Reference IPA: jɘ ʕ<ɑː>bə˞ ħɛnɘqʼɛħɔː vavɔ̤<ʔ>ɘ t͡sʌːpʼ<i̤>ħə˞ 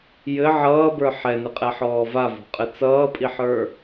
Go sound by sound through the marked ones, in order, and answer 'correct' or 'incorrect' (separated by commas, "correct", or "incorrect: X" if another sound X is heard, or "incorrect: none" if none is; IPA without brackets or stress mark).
incorrect: ʌː, incorrect: qʼ, incorrect: i